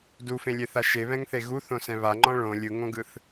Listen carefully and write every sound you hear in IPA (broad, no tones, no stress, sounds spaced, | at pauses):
d u f ẽ lʲ e θ a ʃ e β ɛ̃ ŋ θ e ɣ u θ õ s ɛ̃ β a ŋ͡ǃ ɔ̃ ɭ õ lʲ ɯ ŋ õ ɡ ɯ θ